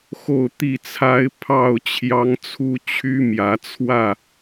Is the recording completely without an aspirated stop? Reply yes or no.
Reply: no